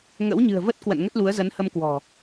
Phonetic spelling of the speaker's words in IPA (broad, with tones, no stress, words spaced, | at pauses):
ŋə̰˧˥wɲɨ̤˨˩ə̯və˦˥t̚ kwə̰˧˨nŋə˦˥t̚lu˨˦ə̯zə˨˦n hə˧mkwɔ̤˨˩